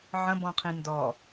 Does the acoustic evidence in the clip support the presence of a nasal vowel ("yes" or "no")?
yes